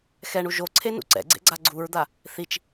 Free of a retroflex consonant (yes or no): no